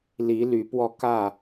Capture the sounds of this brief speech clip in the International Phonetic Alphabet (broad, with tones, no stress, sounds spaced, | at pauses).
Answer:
l i˨˦ l y˨˦ p w ɔ˧ k ä˥˨